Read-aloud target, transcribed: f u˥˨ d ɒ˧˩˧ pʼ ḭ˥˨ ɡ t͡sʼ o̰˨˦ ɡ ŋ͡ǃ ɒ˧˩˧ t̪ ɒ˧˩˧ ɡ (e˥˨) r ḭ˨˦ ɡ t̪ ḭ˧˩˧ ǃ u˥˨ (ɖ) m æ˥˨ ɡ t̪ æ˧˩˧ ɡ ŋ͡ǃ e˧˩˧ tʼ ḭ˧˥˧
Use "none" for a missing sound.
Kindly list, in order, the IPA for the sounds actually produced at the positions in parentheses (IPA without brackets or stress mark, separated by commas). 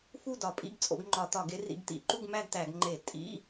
e˨˦, ɡ